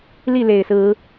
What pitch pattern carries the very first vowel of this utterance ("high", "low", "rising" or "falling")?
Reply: falling